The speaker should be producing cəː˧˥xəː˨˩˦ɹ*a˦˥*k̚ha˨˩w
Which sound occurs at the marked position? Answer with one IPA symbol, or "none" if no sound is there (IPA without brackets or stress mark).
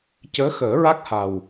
a˦˥